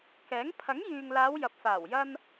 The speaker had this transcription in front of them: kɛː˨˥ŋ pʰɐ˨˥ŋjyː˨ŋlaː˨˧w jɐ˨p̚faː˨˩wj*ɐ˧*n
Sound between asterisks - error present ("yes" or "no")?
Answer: no